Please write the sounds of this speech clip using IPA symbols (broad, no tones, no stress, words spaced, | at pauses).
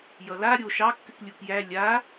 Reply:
jʌla ɾʲo ʃɑkːɨk lʲukjæ lʲa